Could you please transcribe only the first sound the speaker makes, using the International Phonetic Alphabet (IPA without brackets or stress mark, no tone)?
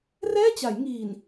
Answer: r